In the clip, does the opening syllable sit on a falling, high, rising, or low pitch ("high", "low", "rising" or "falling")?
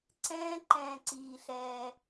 high